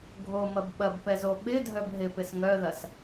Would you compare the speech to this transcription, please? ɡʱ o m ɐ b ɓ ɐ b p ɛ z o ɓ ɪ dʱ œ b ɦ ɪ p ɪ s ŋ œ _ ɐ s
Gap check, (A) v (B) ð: B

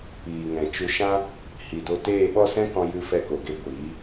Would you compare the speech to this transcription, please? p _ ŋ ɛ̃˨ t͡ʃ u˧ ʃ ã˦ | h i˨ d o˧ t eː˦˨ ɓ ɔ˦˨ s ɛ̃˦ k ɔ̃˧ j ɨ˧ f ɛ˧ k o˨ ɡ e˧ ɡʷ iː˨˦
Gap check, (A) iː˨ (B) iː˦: A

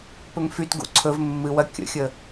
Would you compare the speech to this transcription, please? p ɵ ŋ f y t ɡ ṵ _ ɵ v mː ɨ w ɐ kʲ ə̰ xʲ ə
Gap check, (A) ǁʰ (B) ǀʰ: B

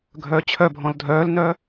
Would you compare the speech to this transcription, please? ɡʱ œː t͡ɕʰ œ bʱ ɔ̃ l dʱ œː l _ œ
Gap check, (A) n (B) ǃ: A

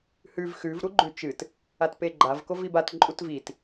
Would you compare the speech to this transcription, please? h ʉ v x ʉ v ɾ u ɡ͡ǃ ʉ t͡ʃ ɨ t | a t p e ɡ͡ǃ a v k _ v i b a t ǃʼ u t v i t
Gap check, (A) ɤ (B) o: B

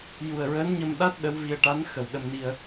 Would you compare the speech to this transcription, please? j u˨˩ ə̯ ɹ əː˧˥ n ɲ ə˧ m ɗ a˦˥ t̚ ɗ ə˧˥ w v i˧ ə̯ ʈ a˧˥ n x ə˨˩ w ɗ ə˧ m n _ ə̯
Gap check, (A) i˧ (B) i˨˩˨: A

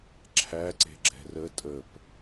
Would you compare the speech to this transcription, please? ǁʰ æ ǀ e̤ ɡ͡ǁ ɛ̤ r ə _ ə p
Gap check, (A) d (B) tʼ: B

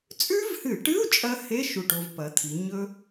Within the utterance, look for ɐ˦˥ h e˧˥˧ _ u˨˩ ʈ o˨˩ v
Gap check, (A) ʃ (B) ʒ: A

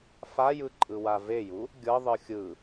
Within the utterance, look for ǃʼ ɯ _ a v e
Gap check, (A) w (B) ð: A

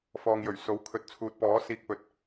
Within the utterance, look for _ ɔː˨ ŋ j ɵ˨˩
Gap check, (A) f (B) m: A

